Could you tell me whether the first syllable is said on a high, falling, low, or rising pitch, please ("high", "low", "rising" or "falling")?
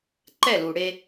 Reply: falling